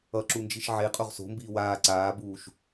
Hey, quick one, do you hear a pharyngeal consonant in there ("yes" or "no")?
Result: yes